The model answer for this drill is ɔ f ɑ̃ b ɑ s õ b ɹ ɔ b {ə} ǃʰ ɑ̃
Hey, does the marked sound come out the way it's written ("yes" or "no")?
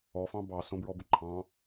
yes